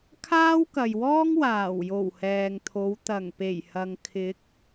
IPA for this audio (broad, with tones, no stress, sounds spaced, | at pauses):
kʰ aː˥ w k ɐ˨ j w ɔː˥ ŋ w aː˨˩ w j o˨˩ w h ɛː˨ ŋ t̪ʰ o˨˧ w t̪ ɐ˨˩ ŋ p e˨˩ j h ɐ˨ ŋ kʰ ɪ˨˥ k̚